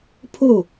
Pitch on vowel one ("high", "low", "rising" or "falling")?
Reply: falling